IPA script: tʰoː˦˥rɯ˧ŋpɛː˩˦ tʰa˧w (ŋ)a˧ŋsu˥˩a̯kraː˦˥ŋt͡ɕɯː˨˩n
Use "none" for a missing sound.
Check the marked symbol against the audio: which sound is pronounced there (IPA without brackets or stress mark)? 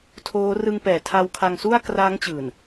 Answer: kʰ